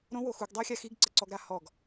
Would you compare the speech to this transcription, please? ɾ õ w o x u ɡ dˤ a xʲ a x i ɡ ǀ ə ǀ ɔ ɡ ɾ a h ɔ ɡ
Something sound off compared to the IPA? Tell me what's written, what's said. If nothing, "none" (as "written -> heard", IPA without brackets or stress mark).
none